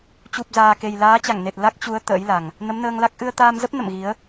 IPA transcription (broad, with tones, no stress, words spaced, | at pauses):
t͡ɕu˨˩p̚zaː˨˩ ke˨˩jlaː˨˦t͡ɕa˧˩ŋne˨˩t̚ la˦˥k̚t͡ɕu˨˦ə̯ t̪ə̰ː˧˥jla˨˩ŋ | nə˨˦mnəː˧ŋla˦˥k̚ ʔɨ˧ə̯t̪aː˧mzə˦˥p̚ nə̰˧˨mɣi˨˦ə̯